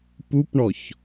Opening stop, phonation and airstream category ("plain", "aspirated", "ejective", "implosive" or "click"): plain